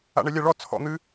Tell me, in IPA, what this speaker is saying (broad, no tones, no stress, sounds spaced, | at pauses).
a̰ ɳ ɛ lʲ a ɭ ɔ t͡sʰ ɔ̰ n̪ ɨ